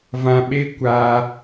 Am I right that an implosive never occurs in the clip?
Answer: no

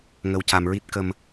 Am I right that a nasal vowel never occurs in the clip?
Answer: yes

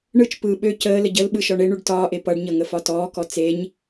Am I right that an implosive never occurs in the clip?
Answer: no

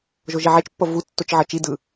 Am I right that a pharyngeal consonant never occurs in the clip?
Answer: no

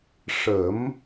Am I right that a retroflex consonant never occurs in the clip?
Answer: no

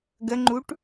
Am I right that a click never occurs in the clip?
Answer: no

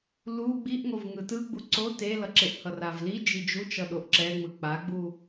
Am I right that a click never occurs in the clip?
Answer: no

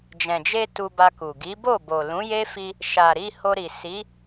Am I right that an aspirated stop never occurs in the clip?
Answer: yes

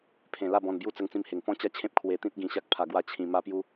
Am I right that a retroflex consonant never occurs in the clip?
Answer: yes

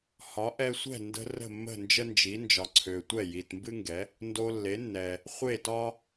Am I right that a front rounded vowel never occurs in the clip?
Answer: no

